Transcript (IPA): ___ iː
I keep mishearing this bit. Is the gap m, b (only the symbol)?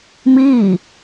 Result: m